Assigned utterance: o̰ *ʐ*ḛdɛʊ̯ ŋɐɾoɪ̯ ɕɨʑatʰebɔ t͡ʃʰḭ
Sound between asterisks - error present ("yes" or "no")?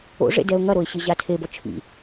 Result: no